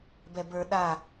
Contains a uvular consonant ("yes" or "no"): no